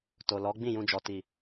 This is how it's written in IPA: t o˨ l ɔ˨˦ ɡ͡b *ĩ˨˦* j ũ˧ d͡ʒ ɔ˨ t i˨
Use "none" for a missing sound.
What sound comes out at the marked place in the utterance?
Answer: ĩ˦˨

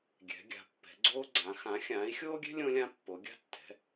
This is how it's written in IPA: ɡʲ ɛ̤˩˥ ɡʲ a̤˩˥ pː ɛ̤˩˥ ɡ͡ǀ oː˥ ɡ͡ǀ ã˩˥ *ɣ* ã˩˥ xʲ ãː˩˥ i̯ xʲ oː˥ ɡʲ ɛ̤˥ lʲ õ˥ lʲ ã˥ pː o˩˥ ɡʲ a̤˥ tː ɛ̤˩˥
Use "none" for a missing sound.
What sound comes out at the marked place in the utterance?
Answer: x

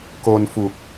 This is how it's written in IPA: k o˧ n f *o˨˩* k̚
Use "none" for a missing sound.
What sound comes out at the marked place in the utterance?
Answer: u˨˩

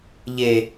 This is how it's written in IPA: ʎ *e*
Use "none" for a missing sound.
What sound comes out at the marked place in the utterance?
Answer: e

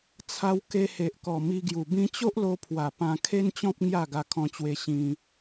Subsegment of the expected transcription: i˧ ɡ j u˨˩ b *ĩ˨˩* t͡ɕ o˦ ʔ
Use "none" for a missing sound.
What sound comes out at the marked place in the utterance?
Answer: ĩ˧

